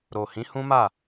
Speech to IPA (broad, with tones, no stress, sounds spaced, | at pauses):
ɾ o˨ h ĩ˨˦ h ũ˦ m a˦˨